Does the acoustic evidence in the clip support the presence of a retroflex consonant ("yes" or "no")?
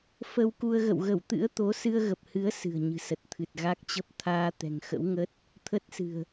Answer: no